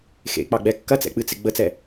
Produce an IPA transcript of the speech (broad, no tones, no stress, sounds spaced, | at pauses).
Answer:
x ḛ k͡p ɑ ɡ͡b ɛ kː ɐ t͡s ɛ̰ k͡p ɨ t͡s ɪ ɡ͡b ə t͡s ɛ